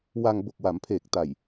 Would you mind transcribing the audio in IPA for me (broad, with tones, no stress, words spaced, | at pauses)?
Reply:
wa˧ŋ bo˨˩k̚wa˩˦mpʰeː˨˩k̚ ta˨˩j